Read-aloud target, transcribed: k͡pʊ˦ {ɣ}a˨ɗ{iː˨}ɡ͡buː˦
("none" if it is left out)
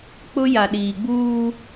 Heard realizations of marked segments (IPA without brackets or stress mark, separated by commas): j, iː˨